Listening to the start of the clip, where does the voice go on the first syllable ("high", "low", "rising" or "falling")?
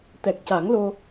low